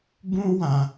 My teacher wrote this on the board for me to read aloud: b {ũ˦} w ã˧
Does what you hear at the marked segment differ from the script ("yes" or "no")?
no